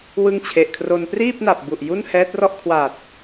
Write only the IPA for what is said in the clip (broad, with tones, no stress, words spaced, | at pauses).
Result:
wɯ˦˥ŋt͡ɕʰe˨˩ʔkʰro˧n priː˥˩p̚na˨˩p̚ bu˨˩ʔ ju˥˩nhɛː˦˥t̚rɔ˥˩ʔ kʰwa˨˩t̚